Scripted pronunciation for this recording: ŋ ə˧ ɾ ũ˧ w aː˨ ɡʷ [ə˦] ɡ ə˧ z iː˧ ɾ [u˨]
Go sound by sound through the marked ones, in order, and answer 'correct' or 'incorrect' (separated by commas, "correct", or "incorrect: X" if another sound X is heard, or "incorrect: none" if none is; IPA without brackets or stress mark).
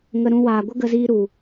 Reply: correct, correct